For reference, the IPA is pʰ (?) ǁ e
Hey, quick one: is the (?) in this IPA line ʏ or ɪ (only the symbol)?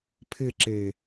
ɪ